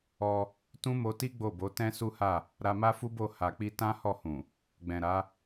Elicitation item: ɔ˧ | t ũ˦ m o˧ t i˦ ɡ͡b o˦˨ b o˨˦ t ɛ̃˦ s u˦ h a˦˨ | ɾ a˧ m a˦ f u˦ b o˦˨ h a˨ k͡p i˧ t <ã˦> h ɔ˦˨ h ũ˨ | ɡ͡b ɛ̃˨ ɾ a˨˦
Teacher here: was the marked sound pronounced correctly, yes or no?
yes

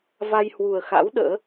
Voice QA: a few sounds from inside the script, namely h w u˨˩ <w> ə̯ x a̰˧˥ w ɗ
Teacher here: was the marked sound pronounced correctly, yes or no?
no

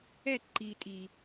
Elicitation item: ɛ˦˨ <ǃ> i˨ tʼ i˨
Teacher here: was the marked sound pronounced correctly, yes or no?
yes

